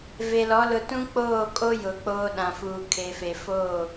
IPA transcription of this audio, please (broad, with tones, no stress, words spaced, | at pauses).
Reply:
ve˨lɔ˨˦ lʊ˨tũ˦ k͡poː˦˨kʼo˦ jʊ˨k͡poː˦ɗã˨fuː˨ kʰe˨fe˨ foː˦˨